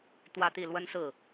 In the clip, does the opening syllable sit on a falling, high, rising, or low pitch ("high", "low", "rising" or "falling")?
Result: falling